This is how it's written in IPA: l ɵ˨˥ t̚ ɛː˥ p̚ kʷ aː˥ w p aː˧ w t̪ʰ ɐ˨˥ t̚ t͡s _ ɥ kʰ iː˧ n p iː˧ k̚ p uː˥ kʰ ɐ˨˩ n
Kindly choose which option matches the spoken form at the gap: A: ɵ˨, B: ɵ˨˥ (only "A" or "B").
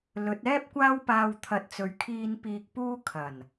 A